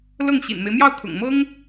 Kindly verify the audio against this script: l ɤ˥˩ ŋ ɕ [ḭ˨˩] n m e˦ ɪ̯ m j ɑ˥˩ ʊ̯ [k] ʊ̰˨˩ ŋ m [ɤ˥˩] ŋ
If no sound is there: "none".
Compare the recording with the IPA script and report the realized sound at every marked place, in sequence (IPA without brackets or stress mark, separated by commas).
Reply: ḭ˨˩, kʰ, ɤ˥